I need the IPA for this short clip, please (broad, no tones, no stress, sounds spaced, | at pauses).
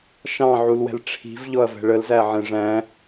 ʃ ɑ̃ ʕ u l w ɛ̤ l ʈ͡ʂʰ i̤ v ʎ ɔ ɐ̯ v ɛ̤ ɭ ə l z æ ʕ ɛ̃ ʐ æ̃